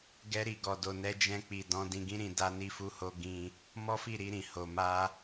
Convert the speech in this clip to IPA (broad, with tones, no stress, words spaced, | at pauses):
ɡɛ˧ɾi˨ɡɔ˨do˨ nɛ˧d͡ʒɛ̃˧k͡pi˨ dɔ̃˨˦ dĩ˧ɡĩ˦ɾĩ˧ da˧ ni˧fu˧ho˧ ɡĩ˧ | mɔ˦fi˦˨ɾi˧ɾĩ˨ ho˨ma˧